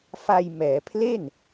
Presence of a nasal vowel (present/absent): absent